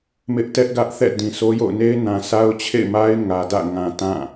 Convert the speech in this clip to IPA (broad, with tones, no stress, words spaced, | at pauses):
mɪ˦ʔtɛ˦ʔ ɡä˦ʔθɛ̰˦˨ dĩ˨so˦ jo̰˦˨ʊ̯ne˦ɪ̯nã˨ sa˦ʊ̯t͡ɕʰḛ˦˨ɪ̯ma˦ɪ̯ ŋä˨dä̰˦˨ ŋã˨ tã˦˨